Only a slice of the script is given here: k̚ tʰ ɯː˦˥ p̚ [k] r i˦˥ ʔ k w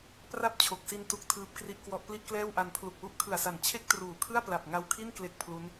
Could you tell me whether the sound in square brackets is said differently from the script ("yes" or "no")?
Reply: no